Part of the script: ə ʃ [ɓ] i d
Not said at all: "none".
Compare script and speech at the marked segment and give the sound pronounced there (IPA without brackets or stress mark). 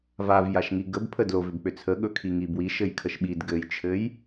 ɓ